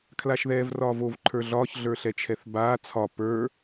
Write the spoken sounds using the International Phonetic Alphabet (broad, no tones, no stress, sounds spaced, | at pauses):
kʰ l a ʃ ð ɛː v r ɒː v o v ǃʰ ə˞ ɮ ɒː ç ɮ ə˞ ɬ ɛ t͡ʃʰ ɛ θ b aː t͡sʰ ɒ p ə˞